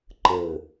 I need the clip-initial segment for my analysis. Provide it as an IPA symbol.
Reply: ǃ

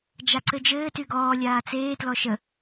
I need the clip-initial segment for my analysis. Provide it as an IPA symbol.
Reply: d͡ʒ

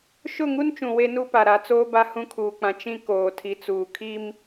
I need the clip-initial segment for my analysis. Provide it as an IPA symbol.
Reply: ʃ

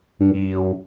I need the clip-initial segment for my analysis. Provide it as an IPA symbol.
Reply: ŋ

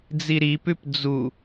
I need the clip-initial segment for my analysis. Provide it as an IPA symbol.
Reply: d͡z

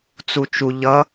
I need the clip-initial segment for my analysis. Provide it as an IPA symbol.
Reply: t͡s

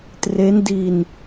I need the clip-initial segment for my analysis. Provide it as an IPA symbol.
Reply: t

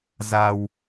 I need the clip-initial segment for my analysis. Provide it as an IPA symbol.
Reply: z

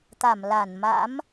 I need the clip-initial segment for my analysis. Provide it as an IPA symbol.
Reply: t̪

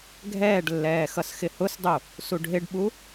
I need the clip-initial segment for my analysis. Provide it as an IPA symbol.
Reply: ɡʱ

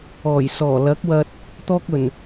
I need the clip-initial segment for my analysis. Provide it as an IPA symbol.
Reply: ɔː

